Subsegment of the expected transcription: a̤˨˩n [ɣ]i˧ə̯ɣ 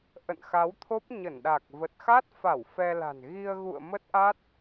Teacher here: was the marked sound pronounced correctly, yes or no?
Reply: yes